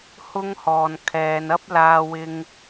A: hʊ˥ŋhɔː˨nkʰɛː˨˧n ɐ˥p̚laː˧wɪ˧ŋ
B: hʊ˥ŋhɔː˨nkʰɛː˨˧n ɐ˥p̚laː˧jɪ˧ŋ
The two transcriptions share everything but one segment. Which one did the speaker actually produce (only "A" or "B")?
A